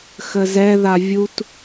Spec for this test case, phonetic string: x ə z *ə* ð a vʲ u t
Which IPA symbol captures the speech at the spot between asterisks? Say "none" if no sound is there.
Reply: ɛ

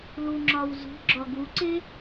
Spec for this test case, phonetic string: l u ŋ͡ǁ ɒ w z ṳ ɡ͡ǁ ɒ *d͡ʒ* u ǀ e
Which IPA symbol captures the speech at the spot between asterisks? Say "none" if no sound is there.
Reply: ɡ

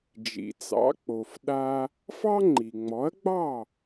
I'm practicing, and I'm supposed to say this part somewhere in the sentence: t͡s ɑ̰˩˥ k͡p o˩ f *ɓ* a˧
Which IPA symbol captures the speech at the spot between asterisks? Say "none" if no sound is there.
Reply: ɗ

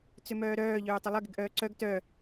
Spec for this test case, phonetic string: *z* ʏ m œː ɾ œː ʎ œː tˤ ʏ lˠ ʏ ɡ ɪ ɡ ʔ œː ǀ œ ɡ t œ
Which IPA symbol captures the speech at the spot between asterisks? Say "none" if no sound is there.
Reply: t͡s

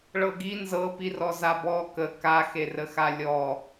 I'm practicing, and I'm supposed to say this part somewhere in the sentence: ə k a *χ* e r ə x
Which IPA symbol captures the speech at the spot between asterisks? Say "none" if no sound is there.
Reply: x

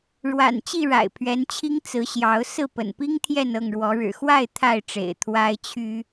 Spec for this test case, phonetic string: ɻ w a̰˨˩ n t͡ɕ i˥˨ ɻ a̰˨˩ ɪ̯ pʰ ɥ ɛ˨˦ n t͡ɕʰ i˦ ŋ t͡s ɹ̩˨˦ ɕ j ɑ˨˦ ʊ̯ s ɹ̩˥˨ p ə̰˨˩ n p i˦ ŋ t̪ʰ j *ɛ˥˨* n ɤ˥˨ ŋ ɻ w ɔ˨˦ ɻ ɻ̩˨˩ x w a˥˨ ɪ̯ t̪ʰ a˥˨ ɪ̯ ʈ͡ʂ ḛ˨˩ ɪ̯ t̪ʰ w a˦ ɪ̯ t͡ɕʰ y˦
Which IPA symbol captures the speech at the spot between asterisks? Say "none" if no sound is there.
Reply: ɛ˥˨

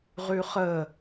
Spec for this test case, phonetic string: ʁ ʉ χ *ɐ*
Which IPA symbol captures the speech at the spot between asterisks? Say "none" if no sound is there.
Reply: ə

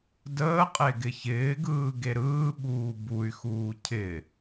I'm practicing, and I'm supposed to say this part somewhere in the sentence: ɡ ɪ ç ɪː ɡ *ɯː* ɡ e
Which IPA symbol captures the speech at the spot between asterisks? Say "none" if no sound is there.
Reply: ɯː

